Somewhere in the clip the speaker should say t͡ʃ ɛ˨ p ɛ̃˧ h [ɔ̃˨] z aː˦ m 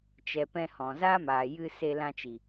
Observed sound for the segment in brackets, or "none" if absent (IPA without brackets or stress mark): ɔ̃˨